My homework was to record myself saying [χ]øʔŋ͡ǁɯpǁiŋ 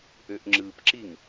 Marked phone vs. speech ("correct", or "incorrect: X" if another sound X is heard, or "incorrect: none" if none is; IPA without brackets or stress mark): incorrect: ʔ